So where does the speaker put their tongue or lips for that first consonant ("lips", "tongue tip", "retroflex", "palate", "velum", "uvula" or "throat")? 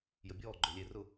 palate